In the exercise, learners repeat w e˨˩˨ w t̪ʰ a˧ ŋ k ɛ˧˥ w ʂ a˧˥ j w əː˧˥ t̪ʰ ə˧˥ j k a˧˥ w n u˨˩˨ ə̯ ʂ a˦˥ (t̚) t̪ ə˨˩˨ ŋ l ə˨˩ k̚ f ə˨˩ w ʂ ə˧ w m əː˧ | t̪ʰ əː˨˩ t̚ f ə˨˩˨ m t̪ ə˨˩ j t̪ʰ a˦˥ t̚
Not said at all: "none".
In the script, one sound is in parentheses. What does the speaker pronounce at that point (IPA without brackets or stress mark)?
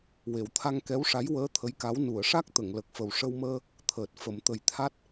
k̚